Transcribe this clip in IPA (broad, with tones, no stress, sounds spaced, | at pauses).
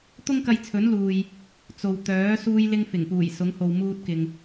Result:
t̪ ʊ˥ ŋ k ɐ˧ j t͡sʰ ɵ˨˥ n l uː˨ j | t͡s o˨ w t̪ œː˨˥ s uː˧ j l ɪ˧ ŋ f ɪ˨˩ ŋ p uː˨˩ j s ʊ˨˥ ŋ h o˨ w m uː˧ t̚ k ɪ˨ ŋ